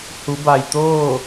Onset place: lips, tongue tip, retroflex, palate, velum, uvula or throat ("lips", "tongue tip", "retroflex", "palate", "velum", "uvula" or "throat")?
throat